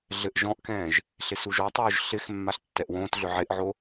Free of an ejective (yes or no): yes